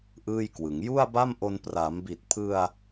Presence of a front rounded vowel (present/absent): absent